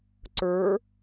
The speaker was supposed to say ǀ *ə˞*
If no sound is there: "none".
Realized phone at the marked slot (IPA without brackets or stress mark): ə˞